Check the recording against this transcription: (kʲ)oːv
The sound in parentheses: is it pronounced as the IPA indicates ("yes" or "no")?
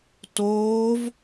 no